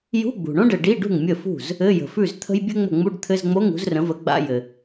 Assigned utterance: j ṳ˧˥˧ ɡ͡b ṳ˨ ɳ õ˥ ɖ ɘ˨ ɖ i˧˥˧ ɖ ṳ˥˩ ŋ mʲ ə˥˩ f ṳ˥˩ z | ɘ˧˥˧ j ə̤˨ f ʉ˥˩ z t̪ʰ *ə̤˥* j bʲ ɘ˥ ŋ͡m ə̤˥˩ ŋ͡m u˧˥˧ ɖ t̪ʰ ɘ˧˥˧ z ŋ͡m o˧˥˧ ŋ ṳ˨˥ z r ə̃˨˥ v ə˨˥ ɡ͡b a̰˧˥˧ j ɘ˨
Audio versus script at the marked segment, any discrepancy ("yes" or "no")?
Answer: no